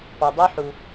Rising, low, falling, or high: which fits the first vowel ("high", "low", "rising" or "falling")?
low